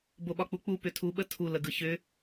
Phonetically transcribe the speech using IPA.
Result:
boɓɒk͡puk͡pu pʏtʰu ɓətʰu ləɡɯçʏ

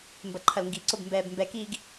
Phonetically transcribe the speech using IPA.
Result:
mbɐǃʰɐlŋɡiǀob mbɛːbmbɛkiːɡ

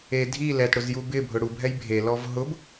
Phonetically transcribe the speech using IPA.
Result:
e dʱi lɛtɽʊz jubɪbʱʊ ɽubʱɛj bʱelɔv ɦʊb

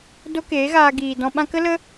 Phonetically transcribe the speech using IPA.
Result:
do˦keː˨˦ɣaː˧ ɡiː˨dɔ̃˧ɓã˦ kə˦lə˦

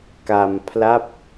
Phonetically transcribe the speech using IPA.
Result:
ka˧mpʰla˥˩p̚

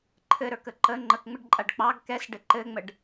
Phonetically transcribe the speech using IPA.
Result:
ǃʰɘɾə˞kə ǃə ŋ͡ǃəkŋ͡mɘɖǃʼaɖ k͡pɑɡ kɛsɖɘ ǃɘŋ͡məɖ

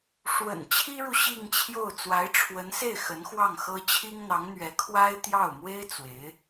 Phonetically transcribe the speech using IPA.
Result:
ʂwə̰˨˩n t͡ɕʰi˥ɻu˨ ɕi˥˧ŋt͡ɕʰjo˥˩ʊ̯ t͡swa˧˥ɪ̯ʈ͡ʂʰwə˧˥nse˥˩ɪ̯ xə˧˥nxwɑ˥˩ŋxɤ˥ t͡ɕʰi˥ŋn̪ɑ˧˥ŋn̪ɥɛ˧˥ kʰwa˥ɪ̯t̪jɑ˥˩ʊ̯ mwe˥ɪ̯ t͡swe˧˥ɪ̯

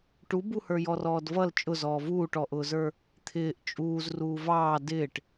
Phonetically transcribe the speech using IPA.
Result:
ʈubuhə˞ jɔrɔːdvʌl t͡ʃʼʊzɔː vuːʈɔʔʊːzə˞ | t̪ʰɪːʔ t͡ʃʼuːz ruːvɑː dɪːʈ

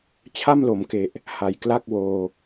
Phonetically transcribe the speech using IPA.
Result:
t͡ɕʰa˥˩mlo˩˦mke˨˩ʔ | ha˨˩jkla˥˩k̚woː˧

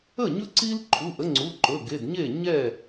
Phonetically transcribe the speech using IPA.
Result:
ə˥˩ɲɵ˦ ǀi˦l ǃʰu˩˧˩ʔə˦ ŋ͡ǀu˩˧˩ǃɵ˩˧˩ɡe˩˧˩d ɲe˥˩ɲɛ˥˩

